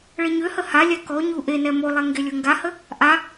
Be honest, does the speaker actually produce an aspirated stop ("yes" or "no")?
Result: no